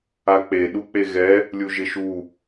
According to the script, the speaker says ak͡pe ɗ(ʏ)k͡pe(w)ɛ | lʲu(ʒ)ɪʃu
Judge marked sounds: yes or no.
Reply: no, no, yes

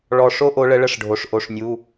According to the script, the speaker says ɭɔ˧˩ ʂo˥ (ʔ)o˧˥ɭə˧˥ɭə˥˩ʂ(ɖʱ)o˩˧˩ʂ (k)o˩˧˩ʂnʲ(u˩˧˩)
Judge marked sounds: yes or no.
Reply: yes, yes, no, yes

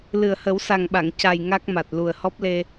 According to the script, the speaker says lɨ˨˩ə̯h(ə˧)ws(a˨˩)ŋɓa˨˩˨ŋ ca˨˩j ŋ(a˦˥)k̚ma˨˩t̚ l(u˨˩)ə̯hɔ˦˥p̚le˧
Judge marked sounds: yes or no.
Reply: no, yes, yes, yes

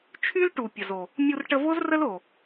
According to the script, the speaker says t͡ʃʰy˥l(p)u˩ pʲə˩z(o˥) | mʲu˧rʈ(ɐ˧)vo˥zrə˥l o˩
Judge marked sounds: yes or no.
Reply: no, no, no

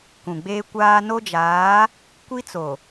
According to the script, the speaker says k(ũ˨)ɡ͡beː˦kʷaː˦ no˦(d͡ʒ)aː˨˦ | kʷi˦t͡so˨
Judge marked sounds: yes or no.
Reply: yes, yes

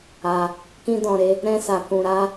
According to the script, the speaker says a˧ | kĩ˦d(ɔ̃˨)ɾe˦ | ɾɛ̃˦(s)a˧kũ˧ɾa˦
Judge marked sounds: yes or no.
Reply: no, yes

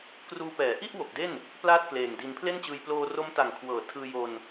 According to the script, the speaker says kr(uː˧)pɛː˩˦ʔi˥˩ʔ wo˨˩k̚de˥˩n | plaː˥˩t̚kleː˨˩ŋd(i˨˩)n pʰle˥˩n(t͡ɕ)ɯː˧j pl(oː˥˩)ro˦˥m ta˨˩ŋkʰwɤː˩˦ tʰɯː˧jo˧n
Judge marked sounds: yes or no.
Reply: yes, no, yes, no

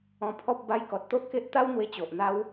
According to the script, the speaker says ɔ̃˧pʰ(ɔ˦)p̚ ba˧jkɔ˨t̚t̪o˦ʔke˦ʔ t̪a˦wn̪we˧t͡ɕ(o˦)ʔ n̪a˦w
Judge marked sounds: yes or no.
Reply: yes, no

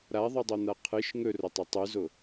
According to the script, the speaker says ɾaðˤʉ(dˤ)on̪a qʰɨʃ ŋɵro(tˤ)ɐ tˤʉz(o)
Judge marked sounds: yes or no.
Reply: yes, yes, yes

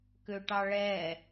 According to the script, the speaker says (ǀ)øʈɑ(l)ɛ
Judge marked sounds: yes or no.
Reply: no, no

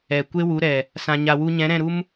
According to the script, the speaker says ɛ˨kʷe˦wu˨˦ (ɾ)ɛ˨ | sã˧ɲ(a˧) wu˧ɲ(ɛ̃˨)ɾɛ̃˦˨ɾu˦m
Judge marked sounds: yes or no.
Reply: yes, yes, no

